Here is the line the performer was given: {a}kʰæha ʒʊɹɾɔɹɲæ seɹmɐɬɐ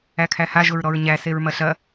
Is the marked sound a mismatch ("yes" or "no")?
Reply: yes